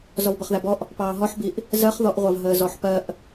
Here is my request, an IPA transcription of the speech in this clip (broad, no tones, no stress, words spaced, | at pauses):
zɔvbʌχðæbɔʔ | pɑːɦɔħbiʔ | zɜχðɔʔʁʷɑv ɦəːzɔħpɜʔ